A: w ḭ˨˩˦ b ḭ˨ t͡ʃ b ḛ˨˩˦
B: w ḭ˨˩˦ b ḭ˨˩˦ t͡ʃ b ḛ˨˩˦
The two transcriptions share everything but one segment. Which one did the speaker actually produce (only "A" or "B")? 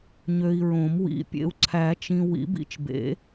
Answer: A